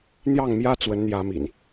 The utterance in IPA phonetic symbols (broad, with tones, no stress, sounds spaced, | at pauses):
n̪ j ɑ˥˨ ŋ m j ä˦ t͡s w ə˨˦ n n̪ j ä˨˦ m ḭ˨˩ n